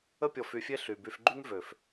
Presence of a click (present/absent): present